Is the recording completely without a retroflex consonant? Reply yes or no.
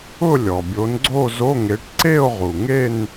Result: no